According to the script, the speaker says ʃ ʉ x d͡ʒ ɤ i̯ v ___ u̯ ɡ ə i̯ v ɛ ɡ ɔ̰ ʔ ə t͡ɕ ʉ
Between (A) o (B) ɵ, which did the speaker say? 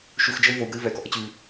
A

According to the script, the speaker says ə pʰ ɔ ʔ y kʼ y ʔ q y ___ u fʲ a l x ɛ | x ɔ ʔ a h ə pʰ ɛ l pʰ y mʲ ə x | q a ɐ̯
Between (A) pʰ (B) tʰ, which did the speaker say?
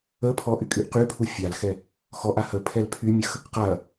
A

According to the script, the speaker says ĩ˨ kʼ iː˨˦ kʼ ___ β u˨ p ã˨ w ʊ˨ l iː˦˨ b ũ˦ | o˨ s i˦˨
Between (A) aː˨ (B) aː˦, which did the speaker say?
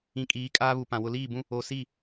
B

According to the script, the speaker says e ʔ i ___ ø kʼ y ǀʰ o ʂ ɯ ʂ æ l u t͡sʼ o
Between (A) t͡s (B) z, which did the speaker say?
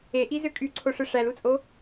B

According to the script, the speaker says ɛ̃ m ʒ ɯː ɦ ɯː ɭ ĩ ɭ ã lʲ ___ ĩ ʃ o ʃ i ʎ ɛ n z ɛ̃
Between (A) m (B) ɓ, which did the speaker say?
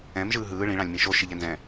A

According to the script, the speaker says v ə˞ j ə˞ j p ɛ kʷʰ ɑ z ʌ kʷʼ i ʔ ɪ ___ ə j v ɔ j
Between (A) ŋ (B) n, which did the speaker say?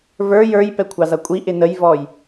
B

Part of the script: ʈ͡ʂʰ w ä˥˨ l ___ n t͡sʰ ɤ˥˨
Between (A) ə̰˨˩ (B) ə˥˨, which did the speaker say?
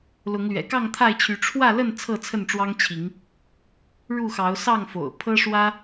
B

